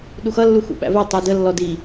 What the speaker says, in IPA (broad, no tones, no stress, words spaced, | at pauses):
ɗuxʌ lːuxṵɓæ̰vɜ tˤudə lːɔdi